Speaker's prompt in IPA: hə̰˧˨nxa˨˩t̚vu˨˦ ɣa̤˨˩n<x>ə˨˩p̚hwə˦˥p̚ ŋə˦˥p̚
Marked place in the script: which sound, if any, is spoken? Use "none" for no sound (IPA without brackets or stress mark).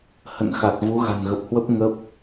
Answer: ɣ